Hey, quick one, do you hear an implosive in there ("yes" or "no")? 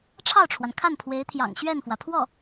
no